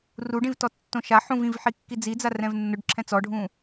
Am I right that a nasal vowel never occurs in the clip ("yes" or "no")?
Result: no